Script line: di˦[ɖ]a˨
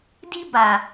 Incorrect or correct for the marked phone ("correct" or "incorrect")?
incorrect